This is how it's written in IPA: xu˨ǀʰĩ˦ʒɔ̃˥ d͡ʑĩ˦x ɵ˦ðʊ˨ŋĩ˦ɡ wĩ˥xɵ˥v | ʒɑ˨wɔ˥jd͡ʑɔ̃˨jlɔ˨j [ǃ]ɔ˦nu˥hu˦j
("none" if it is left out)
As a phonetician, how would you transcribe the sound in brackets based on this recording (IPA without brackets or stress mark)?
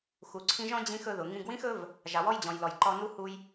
ǃ